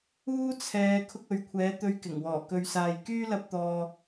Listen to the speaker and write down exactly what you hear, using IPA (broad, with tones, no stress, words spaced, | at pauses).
uː˥t͡sʰɛː˨˧ kʰʊ˧k̚ɵ˨ɥkʷʰɛː˨˥ t̪ɵ˧ɥkɪ˨˩ŋwɔː˨˩ kɵ˨ɥsaː˨jkyː˥ lɐ˥p̚t̪ɔː˧